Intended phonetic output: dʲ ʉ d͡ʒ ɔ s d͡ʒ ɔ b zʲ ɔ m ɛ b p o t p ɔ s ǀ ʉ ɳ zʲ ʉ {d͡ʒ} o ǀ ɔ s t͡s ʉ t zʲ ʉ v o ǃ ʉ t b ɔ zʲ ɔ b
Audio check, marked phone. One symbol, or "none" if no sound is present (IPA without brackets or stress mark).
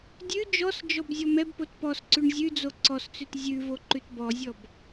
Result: d͡z